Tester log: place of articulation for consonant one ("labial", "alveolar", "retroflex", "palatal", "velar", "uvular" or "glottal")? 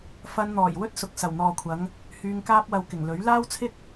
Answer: labial